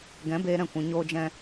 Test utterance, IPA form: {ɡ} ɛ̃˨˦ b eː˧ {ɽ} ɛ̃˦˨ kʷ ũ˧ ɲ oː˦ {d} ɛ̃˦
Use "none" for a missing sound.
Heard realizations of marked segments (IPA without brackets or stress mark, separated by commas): ɡ, ɾ, d͡ʒ